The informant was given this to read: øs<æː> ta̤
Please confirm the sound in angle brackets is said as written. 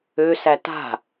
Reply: no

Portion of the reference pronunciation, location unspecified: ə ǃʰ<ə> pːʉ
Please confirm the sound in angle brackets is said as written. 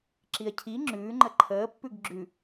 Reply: no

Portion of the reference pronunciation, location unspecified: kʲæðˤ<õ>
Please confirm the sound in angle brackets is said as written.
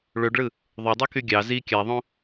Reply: yes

